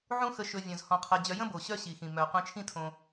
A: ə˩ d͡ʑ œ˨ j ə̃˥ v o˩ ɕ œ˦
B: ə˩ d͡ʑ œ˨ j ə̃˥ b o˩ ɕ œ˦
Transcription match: B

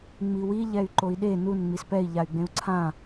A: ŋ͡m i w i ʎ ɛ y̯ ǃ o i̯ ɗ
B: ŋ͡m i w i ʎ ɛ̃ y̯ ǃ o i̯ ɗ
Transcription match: A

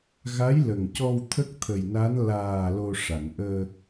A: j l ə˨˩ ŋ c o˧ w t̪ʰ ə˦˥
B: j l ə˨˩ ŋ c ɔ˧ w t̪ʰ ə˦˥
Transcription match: B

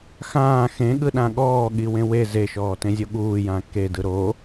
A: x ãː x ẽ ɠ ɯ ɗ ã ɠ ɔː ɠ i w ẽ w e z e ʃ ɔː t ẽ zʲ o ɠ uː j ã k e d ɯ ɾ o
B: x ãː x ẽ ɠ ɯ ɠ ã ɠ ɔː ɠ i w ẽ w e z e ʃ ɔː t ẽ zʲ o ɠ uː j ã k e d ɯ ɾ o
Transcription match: A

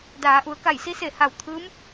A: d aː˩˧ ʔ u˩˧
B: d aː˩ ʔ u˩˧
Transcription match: A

